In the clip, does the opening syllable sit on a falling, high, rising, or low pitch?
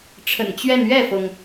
low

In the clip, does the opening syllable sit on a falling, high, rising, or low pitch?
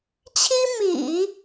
high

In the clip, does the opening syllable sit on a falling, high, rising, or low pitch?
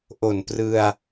low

